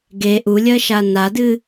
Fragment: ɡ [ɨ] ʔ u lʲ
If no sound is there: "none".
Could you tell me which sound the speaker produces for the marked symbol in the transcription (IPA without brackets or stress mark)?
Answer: e